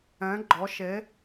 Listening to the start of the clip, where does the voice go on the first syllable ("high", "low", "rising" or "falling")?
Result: rising